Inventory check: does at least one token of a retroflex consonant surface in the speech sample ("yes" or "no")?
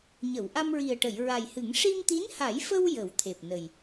yes